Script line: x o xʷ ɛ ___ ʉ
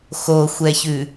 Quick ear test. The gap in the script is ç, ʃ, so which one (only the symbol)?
ç